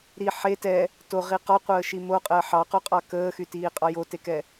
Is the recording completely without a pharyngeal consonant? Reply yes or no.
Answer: no